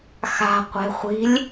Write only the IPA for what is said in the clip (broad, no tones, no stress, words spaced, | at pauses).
xa̤ qʷe̤χʷi̤lʲ